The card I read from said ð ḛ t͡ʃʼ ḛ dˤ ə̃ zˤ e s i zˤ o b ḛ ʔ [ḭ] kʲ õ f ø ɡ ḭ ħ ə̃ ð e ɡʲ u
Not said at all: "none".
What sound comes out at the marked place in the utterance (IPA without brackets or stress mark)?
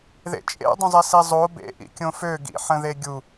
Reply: ḭ